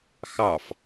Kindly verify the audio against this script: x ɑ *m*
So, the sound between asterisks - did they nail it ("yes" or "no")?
no